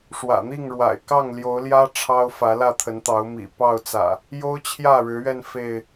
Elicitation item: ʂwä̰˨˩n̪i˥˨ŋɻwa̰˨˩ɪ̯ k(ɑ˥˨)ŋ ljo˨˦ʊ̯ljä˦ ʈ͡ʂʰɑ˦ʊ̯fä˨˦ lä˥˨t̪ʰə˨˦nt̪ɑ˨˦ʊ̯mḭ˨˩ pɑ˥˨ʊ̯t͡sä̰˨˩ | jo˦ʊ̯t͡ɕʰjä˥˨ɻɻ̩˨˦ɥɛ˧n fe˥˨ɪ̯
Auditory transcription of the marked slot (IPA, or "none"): ɑ˥˨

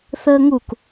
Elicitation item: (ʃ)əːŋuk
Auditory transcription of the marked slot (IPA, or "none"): θ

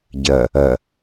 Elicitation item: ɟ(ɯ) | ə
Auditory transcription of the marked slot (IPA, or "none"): ə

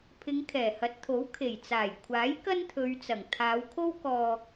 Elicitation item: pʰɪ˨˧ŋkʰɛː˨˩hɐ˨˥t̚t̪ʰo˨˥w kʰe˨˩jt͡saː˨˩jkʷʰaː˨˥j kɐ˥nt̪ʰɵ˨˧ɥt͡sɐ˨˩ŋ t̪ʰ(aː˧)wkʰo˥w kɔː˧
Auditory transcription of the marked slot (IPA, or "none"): aː˨˧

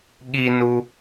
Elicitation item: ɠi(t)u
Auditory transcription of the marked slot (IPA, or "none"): n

